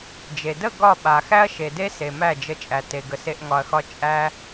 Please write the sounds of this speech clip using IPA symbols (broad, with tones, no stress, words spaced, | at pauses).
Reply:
d͡ʒe˨ də˦˨ ɡɒ˦˨ɓa˨ xæ˦ɐ̯ʃe˨de˦ se˨mæ˦˨d͡ʒə˧ t͡ʃʼæ˨te˨ ɡə˨se˧ʔ ŋɒ˧ɐ̯xɒ˦ t͡ʃʼæ˦